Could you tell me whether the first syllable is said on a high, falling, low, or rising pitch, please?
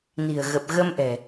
low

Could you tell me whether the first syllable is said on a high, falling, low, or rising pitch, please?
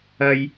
high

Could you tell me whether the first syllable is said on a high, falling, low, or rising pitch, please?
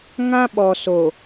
high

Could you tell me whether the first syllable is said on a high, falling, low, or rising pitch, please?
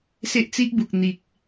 high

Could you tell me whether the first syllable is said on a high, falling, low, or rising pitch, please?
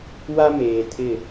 high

